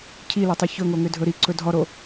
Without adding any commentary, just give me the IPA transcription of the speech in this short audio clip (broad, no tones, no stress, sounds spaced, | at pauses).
cʰ i l ɔ tˤ e ç ɵ ŋ o ŋ ʏ dʱ ɵ ɾ i ǀ ɵ dʱ ɔ ɾ o